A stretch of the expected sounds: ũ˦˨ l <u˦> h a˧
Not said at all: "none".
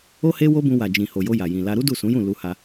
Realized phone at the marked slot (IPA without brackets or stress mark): u˧